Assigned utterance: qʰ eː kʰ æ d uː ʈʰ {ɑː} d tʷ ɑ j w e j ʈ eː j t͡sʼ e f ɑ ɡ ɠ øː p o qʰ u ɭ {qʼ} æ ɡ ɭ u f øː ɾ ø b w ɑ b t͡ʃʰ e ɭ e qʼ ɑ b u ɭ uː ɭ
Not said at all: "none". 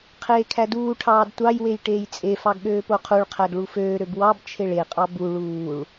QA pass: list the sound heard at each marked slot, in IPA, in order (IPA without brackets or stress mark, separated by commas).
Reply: ɑː, qʰ